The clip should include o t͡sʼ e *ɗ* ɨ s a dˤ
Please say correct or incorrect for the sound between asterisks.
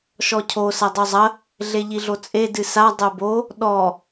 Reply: incorrect